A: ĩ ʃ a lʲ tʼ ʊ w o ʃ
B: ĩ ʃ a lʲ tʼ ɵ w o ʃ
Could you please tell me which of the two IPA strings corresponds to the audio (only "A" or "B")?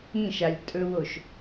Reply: B